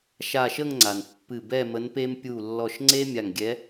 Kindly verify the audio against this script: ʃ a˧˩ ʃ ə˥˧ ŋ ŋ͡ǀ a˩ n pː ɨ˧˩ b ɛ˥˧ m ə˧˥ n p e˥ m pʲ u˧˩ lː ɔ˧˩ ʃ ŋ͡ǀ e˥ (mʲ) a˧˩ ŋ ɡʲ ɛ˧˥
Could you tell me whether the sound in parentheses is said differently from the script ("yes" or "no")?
no